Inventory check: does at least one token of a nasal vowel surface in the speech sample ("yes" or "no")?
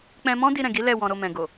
yes